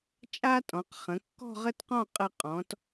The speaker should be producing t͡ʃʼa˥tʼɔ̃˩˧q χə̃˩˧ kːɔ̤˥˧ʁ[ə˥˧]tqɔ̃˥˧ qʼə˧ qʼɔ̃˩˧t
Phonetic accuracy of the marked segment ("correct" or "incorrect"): correct